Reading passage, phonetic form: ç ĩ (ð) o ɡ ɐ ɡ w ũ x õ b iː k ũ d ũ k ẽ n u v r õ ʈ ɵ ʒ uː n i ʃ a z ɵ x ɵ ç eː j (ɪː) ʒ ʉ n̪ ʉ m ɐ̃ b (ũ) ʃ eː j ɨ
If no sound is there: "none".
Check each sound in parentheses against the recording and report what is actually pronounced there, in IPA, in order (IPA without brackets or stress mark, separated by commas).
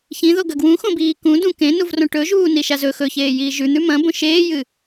ð, iː, õ